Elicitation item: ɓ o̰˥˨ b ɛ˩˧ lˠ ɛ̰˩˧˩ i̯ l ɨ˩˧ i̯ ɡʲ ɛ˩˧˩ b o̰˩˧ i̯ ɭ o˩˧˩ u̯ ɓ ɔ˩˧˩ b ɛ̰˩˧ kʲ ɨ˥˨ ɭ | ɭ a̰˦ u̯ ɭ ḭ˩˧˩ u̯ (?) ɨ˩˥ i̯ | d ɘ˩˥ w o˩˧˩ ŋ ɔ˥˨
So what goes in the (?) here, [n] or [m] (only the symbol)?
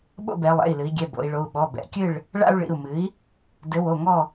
m